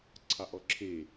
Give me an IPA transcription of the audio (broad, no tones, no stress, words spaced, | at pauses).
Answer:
ǀʰɑʔɔǁʰe